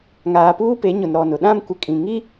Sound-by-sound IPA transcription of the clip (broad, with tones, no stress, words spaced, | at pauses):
ŋaː˨puː˦pe˨˦ɲʊ˨n ɾɔ˨nʊ˨ ɗã˦m kʷɪ˨ kʼĩ˨ŋi˦